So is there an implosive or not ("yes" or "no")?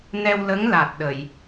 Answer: yes